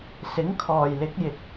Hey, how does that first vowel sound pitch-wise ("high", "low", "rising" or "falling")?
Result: rising